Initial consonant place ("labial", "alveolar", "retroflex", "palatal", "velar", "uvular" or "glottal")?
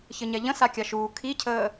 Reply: palatal